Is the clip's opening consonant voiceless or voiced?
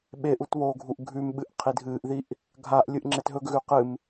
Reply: voiced